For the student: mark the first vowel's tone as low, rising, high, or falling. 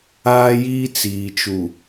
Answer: high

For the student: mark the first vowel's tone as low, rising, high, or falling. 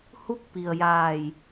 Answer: falling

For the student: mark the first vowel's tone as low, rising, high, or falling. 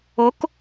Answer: rising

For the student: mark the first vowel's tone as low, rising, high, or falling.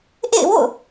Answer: falling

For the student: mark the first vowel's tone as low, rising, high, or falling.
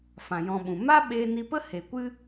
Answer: low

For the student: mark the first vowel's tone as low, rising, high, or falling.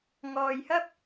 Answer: low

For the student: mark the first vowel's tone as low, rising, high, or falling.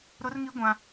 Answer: high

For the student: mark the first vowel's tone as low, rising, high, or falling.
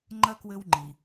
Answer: high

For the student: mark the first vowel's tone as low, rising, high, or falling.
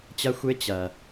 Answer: high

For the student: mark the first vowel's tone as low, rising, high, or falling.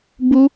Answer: high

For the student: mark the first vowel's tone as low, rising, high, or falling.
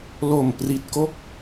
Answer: low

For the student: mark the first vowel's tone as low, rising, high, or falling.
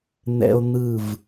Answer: high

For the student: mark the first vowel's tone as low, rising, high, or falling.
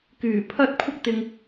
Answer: low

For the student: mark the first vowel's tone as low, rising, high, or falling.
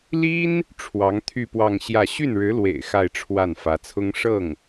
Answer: high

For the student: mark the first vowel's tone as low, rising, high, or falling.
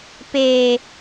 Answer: low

